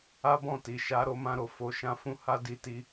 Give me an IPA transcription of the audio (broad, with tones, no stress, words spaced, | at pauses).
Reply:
a˦bɔ̃˦˨ti˨ ʃa˨˦ɾo˧ mã˧ɾo˨ fo˨ʃã˧fũ˧ ha˧ di˧ti˧